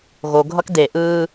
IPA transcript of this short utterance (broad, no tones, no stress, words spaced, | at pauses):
ɣoɡʱʌk de ʔɯː